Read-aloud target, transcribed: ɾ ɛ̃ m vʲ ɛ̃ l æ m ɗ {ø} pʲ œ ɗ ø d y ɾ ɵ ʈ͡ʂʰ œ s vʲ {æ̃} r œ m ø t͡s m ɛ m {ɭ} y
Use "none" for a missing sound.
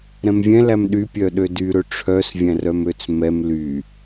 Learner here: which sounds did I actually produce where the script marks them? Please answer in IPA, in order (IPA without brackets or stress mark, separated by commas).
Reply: y, æ̃, l